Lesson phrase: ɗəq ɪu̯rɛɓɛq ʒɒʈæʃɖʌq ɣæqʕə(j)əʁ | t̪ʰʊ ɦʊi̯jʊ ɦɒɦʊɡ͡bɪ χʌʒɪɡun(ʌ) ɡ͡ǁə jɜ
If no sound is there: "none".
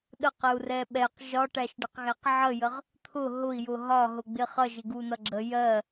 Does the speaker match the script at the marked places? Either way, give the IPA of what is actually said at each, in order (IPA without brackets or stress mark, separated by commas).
j, ʌ